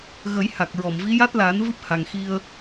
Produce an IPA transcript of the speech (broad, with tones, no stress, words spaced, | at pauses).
ɣə˨˩˦j ha˨˩k̚ɹɔ˨˩˨mvi˧˥ ja˦˥t̚laː˨˩˦n vɨ˦˥p̚ ha˨˩ŋxi˧ə̯